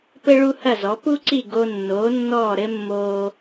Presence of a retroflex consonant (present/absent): present